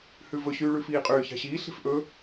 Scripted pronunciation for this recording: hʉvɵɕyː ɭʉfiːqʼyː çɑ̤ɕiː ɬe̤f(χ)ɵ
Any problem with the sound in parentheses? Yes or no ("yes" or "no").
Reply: yes